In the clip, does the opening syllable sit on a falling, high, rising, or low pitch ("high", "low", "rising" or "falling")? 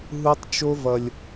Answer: high